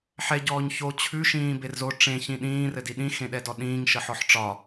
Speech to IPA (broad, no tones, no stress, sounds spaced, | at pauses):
ħ ɛ ɟ ɔː ɲ ç o t͡ɕʰ ʉ ʃ ĩː b e r z o ʈ͡ʂ ẽ ç ĩ ɗ ĩː r ɘ d i ɗ ĩ x ẽ ɗ ɛ d ɔ ɗ ĩː ŋ ʃ ə ħ ɔ ħ ʈ͡ʂ ɒ